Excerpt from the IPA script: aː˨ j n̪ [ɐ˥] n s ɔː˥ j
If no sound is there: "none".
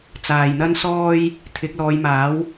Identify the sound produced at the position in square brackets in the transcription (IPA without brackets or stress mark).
ɐ˥